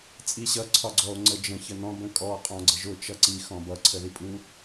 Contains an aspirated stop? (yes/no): yes